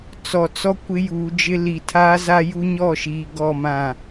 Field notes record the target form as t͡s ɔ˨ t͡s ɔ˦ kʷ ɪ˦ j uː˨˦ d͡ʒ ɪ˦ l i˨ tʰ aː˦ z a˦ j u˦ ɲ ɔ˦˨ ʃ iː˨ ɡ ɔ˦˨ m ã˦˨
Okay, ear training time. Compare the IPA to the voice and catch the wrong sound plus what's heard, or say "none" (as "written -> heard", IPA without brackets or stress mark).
none